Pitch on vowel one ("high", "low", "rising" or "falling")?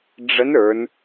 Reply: rising